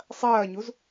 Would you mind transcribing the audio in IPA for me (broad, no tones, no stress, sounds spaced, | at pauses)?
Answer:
sˤ ɐː ɲ u z